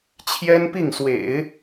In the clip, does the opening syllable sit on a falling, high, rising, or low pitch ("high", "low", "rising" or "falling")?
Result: high